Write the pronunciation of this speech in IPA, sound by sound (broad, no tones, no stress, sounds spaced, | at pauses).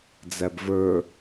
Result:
d͡z æ b v ə˞